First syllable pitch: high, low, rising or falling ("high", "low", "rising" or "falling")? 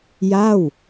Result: falling